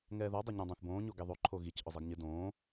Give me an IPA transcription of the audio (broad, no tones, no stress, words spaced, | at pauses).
ŋɛːðɔ dˤeɲõdˤãθbõː ɲoɡeðˤo ǃʰoɣic ʔʊzˤeɡɲɪ dõː